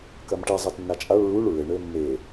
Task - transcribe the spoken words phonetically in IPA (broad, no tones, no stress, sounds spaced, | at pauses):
k ɐ m ʈ i zˤ ɘː t nː a t͡ʃʼ a ɭ ɹ u ɭ ɹ ɘ ɳ ɘː mː e